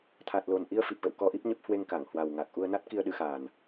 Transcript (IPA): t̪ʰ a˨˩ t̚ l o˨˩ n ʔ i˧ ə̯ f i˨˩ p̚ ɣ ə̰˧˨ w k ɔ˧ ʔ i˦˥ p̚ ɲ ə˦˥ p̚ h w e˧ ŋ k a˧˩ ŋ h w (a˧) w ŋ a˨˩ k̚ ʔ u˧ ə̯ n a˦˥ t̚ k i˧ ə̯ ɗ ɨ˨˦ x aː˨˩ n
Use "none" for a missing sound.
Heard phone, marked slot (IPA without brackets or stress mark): a˨˩